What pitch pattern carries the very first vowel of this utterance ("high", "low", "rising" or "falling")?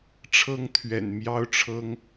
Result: high